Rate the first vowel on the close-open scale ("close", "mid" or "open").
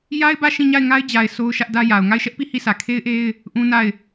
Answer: open